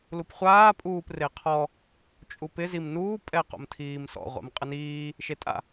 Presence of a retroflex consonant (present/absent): absent